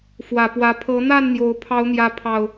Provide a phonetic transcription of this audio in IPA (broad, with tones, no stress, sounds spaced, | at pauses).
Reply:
f w ä˨˩ p w ä˨˦ pʰ ɤ˨˦ n̪ a˥˨ n n̪ j o˨˦ ʊ̯ pʰ ɑ˨˦ ʊ̯ n̪ j ä˨˦ pʰ ɑ˨˩ ʊ̯